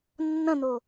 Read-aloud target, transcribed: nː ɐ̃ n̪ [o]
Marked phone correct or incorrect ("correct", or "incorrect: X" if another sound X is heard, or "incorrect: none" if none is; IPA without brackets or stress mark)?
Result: correct